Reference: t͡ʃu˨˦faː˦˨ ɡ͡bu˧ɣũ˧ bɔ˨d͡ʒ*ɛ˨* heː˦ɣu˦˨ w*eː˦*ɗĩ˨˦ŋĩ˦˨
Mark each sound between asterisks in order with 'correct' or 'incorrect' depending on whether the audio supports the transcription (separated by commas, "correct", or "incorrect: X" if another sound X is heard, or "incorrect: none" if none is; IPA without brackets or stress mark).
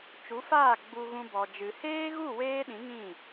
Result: incorrect: ɨ˨, correct